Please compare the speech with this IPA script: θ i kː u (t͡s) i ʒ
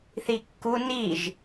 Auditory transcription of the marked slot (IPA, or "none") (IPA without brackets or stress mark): n